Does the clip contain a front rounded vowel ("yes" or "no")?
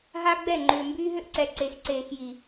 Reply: yes